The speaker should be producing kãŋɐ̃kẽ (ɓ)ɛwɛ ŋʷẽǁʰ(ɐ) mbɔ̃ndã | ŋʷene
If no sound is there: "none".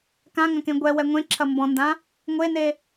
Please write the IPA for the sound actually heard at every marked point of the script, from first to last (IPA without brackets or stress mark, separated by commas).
ɡʷ, ɐ